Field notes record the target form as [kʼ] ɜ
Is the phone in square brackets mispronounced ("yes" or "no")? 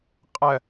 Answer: yes